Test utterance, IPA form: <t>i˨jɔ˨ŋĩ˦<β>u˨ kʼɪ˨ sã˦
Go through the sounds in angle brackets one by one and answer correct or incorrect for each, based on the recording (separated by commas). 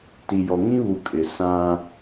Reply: correct, correct